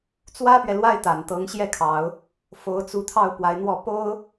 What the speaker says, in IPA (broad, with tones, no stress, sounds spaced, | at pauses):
t͡s w ä˥ p ɥ ɛ˨ l w a˥˩ ɪ̯ t̪ a˨˩ n t̪ ɤ˧˥ ŋ ɕ j ɛ˥˩ kʰ ɑ˨˩˦ ʊ̯ | f o˧˥ ʊ̯ t͡s u˧˥ t̪ʰ ɑ˥˩ ʊ̯ p w a˧˥ ɪ̯ n̪ w ɔ˥˩ p o˥ ʊ̯